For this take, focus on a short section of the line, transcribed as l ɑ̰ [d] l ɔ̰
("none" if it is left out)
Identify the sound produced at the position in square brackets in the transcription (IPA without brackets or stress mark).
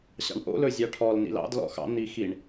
d